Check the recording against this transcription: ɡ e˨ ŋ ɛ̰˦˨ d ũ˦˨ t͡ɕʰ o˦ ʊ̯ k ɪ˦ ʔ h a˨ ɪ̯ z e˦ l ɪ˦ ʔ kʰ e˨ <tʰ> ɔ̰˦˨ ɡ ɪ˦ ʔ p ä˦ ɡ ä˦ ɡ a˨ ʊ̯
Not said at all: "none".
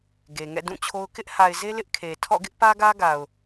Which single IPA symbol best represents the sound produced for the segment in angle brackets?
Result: tʰ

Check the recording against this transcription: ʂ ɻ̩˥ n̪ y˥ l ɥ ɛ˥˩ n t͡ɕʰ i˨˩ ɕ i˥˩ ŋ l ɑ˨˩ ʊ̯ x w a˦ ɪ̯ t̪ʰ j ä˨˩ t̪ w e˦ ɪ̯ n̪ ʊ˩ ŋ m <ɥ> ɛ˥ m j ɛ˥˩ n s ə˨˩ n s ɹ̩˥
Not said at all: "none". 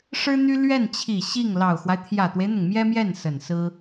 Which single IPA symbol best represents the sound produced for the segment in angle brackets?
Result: j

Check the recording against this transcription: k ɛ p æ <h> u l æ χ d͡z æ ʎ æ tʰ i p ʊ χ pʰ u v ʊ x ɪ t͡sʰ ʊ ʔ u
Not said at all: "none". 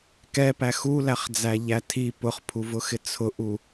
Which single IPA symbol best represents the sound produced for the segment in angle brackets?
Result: x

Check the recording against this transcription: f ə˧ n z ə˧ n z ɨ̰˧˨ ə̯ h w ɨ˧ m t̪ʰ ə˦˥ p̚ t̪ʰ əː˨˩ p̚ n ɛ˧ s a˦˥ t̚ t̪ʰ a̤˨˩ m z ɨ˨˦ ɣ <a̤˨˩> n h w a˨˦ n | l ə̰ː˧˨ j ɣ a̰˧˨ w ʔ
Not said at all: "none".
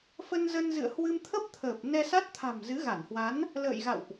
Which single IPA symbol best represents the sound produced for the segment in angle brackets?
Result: a˧˩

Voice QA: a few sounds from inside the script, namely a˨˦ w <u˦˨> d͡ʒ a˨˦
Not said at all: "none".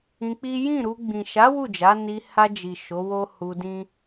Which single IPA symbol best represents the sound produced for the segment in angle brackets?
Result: u˦˨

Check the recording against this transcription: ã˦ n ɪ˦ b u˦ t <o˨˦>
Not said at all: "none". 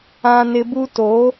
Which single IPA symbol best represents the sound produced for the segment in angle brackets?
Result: o˨˦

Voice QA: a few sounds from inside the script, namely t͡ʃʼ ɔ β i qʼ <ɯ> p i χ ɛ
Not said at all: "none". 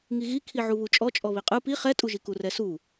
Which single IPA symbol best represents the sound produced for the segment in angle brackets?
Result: ɯ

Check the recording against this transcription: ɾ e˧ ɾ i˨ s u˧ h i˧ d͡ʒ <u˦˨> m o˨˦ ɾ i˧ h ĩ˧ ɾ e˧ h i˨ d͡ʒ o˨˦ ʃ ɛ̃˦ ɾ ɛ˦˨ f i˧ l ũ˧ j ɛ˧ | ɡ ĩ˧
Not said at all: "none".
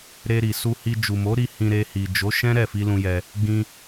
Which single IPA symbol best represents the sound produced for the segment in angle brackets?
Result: u˨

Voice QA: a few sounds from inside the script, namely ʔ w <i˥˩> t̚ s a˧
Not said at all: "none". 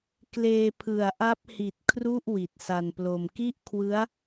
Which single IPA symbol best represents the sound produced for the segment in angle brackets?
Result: i˨˩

